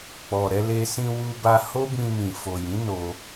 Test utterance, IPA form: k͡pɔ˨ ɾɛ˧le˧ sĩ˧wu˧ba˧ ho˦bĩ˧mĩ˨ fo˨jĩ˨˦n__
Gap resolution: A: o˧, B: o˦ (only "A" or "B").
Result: A